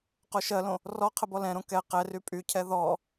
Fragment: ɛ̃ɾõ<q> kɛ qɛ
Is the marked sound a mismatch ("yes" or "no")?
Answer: yes